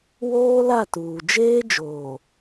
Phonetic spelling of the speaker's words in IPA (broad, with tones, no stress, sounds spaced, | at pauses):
w oː˦ l a˦˨ t uː˨ d͡ʒ eː˦ d͡ʒ oː˨